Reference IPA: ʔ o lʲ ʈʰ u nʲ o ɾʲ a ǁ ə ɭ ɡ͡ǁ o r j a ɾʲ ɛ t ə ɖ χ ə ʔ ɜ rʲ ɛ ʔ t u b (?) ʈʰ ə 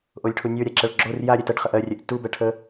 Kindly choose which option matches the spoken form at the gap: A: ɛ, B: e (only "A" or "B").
A